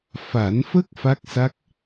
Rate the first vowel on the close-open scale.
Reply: open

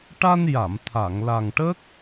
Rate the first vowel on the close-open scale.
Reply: open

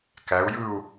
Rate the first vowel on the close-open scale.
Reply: open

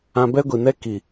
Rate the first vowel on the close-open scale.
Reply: open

